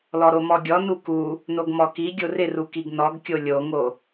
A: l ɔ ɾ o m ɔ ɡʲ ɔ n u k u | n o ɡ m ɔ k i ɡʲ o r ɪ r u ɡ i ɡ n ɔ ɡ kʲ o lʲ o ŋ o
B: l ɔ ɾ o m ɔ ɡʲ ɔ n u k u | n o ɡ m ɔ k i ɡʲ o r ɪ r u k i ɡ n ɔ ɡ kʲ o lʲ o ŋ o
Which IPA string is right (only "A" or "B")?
B